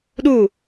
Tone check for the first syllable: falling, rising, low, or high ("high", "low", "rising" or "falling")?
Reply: falling